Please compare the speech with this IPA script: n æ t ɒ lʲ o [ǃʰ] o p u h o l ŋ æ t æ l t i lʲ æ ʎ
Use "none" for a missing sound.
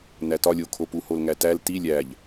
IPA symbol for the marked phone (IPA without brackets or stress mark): kʰ